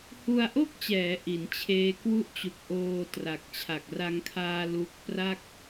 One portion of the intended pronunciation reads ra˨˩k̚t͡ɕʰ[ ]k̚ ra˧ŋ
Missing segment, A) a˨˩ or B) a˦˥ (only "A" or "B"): A